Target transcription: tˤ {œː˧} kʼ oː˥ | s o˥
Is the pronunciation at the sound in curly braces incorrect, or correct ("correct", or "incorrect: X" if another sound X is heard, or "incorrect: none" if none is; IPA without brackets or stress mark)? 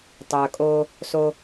correct